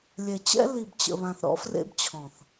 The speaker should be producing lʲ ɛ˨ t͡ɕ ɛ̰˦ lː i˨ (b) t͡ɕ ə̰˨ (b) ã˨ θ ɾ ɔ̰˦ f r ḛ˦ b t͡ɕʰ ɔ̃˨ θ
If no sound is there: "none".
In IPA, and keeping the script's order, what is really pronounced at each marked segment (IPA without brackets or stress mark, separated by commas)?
b, β